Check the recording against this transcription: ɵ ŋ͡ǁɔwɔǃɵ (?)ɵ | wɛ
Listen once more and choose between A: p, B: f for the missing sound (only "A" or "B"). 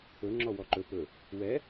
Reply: A